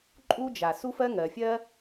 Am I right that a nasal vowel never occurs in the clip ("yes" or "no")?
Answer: yes